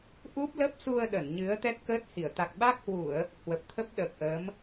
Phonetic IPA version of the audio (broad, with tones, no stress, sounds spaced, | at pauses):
ʔ u˦˥ p̚ l ə˦˥ p̚ s u˧ ə̯ ɗ ə˧˩ n ɲ ɨ˨˦ ə̯ t̪ ɛ˦˥ t̚ k əː˦˥ t̚ h i˧˩ ə̯ t̪ a˨˩ k̚ ɓ a˦˥ k̚ h w u˧˩˨ ə̯ | h w ə˨˩ p̚ t̪ʰ ə˦˥ p̚ ɗ əː˨˩ k̚ ʔ əː˨˦ m